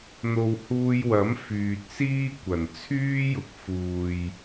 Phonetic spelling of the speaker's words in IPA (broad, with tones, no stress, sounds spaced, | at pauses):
n̪ o˨ w h uː˧ j w ɐ˨˥ m f yː˨ t̚ s iː˥ kʷ ɐ˨˩ n t͡sʰ yː˥ j ʊ˨˥ k̚ f uː˨ j